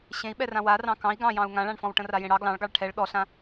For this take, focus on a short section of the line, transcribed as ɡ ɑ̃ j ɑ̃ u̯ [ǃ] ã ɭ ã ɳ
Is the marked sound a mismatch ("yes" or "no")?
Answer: yes